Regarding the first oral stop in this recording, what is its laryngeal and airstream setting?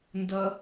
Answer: plain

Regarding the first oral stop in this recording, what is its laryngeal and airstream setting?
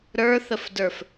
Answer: plain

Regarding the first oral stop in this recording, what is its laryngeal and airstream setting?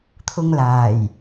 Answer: aspirated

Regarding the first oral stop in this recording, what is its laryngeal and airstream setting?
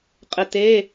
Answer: ejective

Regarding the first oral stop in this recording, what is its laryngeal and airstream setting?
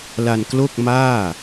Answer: plain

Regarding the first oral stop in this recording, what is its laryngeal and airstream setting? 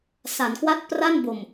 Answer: plain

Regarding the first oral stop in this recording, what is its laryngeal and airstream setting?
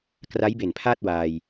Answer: plain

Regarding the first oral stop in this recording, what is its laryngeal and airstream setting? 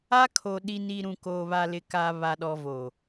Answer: aspirated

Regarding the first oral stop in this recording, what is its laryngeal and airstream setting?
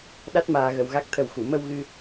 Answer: implosive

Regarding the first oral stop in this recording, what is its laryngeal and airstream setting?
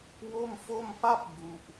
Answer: plain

